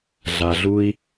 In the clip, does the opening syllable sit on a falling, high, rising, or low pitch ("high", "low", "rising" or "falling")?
low